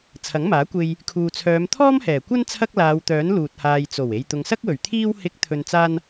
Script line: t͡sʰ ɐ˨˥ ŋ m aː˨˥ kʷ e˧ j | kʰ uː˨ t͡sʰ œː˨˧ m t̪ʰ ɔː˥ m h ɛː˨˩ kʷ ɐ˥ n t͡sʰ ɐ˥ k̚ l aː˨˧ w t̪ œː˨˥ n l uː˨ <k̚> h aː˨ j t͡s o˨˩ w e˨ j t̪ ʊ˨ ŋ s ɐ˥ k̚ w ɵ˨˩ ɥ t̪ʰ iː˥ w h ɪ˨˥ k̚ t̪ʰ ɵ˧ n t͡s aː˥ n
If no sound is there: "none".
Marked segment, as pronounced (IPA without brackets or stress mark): t̚